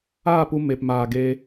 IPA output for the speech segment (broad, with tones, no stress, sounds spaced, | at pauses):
aː˦˨ p u˧ m e˨ p m aː˨ ɡ eː˧